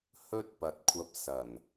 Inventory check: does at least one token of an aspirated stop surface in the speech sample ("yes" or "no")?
yes